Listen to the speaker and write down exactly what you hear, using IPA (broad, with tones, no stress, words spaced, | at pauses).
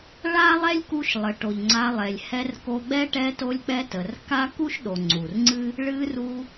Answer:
ɭa˦lˠɛ˦lʲku˧ʃ lˠə˨ʈo˨ʎŋ͡ǀa˧lˠɛ˨lʲ hɛ˧rko˧ɡ͡bɛ˦ ʈɛ˧to˧lʲk͡pɛ˧ tə˨rka˦ ku˦ʃɗo˨ŋ͡ǀu˨rŋ͡ǀɨ˦ | ɭɨ˧ru˧